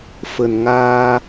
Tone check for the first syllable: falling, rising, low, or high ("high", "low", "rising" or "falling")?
low